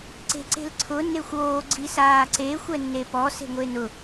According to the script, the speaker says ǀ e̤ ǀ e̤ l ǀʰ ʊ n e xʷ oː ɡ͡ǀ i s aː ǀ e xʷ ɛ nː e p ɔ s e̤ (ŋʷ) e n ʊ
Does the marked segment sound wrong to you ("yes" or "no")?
no